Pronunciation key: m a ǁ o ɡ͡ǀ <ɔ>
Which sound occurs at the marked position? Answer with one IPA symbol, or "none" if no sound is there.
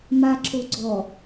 ɔ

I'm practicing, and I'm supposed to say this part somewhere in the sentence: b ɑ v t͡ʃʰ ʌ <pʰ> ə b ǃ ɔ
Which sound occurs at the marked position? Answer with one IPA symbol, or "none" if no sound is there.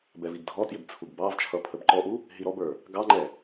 pʰ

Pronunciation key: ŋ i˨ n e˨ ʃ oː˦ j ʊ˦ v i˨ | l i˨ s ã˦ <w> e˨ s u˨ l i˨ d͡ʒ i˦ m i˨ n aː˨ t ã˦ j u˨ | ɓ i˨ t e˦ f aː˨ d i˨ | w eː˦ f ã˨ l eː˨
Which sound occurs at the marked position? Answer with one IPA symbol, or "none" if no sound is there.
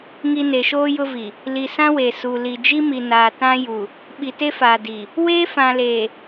w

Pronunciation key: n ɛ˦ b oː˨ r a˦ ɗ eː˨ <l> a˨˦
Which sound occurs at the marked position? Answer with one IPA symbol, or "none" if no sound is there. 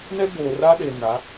n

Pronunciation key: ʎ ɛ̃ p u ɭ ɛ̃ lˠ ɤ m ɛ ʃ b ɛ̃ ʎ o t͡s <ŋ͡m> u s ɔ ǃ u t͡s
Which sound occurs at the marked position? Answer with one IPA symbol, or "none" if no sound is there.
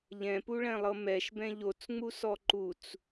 ŋ͡m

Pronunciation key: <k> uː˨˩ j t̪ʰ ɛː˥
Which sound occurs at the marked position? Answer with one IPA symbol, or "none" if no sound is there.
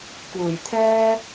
k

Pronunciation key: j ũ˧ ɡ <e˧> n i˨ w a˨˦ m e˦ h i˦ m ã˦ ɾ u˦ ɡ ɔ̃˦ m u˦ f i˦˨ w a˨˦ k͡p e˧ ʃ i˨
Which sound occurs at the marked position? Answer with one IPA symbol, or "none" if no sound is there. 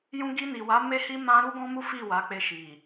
i˧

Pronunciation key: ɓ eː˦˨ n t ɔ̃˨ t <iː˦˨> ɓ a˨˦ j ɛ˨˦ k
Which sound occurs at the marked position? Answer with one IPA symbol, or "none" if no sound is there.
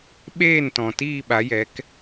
iː˦˨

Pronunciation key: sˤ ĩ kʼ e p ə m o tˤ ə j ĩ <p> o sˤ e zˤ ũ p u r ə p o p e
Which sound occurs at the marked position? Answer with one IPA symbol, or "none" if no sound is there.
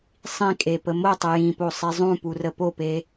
p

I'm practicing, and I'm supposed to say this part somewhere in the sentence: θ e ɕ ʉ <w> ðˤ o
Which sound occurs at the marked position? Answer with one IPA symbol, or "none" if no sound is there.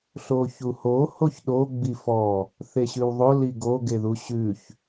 w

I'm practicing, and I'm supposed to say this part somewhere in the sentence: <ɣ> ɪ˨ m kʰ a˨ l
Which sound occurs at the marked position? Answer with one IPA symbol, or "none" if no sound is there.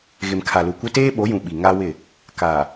ɣ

